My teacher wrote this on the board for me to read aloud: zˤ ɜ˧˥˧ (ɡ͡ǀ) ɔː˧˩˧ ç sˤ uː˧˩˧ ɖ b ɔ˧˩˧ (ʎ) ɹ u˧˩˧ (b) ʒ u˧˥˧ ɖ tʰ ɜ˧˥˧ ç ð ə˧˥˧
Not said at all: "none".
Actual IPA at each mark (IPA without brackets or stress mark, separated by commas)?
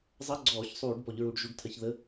ɡ͡ǀ, ʎ, ɖ